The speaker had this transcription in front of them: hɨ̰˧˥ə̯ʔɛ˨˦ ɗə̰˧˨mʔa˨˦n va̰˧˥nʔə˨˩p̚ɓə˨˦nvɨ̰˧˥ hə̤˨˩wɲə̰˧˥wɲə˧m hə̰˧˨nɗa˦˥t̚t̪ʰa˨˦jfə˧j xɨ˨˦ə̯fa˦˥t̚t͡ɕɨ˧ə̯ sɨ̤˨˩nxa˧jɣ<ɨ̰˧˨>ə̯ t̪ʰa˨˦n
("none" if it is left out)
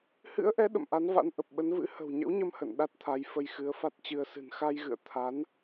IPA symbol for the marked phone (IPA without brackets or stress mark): ɨ̰˧˨